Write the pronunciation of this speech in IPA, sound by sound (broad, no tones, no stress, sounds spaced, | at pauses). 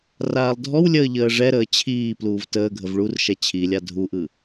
r aː lˠ dʱ ɔ w lʲ əː ʎ əː ʐ ɛ ɾ əː t͡ɕʰ iː p l uː v t əː ɡʱ ə v ɭ u r ʃ ɛ t͡ɕʰ i lʲ a dʱ u ʔ ɯ